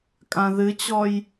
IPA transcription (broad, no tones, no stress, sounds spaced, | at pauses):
kʼ ã ð ɨ t͡ɕ ɔ j